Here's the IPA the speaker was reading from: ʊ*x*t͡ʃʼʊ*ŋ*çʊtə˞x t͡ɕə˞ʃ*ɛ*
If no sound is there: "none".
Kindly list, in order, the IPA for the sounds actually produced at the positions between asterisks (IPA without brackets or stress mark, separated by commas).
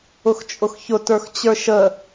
x, x, ə